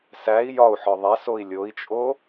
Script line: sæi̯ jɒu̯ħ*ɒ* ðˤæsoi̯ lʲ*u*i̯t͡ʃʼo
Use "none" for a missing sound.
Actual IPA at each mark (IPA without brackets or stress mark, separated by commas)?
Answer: ɒ, o